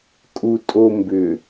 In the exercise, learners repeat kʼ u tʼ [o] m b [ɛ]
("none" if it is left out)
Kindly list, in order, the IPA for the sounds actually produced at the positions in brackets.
o, ʏ

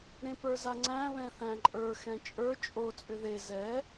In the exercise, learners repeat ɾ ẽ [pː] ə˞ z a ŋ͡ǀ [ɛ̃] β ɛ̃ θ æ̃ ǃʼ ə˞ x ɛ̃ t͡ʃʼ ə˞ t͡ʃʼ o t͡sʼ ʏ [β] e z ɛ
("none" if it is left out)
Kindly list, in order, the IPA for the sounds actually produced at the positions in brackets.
p, æ̃, ð

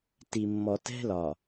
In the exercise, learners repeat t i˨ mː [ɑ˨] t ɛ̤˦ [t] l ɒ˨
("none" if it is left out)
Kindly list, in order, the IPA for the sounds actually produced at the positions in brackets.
ɔ˨, none

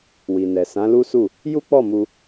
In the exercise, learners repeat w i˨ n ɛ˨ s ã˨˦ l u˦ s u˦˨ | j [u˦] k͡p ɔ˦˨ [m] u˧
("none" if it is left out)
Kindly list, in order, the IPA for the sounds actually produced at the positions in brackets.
u˦, m

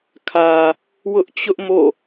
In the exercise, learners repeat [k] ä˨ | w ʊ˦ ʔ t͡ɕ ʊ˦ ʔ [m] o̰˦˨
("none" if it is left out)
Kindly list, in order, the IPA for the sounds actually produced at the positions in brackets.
kʰ, m

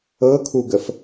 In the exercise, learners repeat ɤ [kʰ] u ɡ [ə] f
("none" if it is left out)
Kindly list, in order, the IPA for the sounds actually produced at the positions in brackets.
kʰ, ə

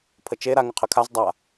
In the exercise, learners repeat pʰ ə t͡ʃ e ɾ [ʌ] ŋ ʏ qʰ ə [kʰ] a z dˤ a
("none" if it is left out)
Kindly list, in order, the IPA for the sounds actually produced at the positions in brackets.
a, kʰ

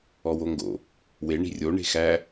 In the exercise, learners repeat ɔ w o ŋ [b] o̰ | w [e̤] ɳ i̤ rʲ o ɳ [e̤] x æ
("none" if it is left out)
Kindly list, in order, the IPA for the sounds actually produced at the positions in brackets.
ɡ, e, e̤

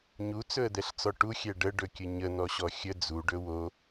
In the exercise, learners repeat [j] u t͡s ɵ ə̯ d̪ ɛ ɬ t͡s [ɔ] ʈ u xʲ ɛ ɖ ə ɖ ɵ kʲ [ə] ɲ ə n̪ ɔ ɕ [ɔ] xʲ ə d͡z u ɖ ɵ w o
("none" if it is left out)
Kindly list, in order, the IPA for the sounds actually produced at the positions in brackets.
ɲ, ɔ, ə, ɔ

